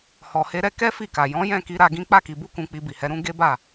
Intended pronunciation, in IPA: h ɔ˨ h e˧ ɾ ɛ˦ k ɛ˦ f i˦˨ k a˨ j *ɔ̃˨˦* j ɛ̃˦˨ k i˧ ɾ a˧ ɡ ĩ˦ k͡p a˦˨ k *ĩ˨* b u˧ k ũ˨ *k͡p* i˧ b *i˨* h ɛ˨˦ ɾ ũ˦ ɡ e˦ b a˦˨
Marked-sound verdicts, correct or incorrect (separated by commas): correct, incorrect, correct, correct